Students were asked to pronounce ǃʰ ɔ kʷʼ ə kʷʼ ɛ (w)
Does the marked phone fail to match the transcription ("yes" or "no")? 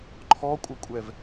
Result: yes